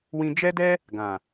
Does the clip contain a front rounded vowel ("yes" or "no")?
no